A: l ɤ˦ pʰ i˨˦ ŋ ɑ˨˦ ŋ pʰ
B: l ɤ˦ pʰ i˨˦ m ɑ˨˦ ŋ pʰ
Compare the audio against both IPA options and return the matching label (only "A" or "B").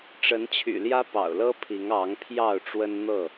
A